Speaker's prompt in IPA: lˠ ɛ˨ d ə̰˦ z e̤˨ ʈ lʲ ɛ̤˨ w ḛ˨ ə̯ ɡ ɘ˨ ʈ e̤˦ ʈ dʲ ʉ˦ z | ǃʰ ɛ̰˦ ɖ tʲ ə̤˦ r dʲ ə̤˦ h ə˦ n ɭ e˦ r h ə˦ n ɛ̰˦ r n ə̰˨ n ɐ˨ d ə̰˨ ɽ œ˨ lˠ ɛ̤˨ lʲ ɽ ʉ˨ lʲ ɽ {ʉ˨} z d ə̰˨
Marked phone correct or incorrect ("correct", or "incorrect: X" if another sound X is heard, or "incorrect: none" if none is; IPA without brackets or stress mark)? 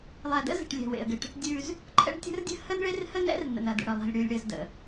incorrect: ɘ˨